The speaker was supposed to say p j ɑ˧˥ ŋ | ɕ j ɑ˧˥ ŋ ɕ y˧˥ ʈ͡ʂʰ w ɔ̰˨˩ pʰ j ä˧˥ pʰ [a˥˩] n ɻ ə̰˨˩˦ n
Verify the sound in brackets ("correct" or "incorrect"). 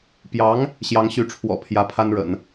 incorrect